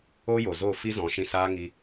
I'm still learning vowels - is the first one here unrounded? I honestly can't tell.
no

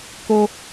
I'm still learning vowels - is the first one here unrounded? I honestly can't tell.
no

